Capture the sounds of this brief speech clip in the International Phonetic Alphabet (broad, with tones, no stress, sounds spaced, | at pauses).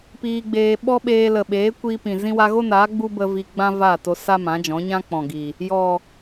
p iː˧ ɡ͡b eː˧ ɓ ɔ˦ ɓ eː˧ l ə˨ ɓ eː˨˦ kʷ iː˧ p ĩ˨ z ĩ˧ w a˧ ɣ o˦ n aː˨˦ ɡ͡b u˦ b ə˧ v i˧ ɡ͡b ã˦ v a˦˨ t o˧ s a˦ m ã˨˦ d͡ʒ ɔ̃˨˦ ɲ ã˦ k͡p ɔ̃˨ ɡ i˨ | j ɔ˨